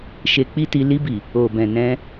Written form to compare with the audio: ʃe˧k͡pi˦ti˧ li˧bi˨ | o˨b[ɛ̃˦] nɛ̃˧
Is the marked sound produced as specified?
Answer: no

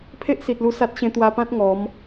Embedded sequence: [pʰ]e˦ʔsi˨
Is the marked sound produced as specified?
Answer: yes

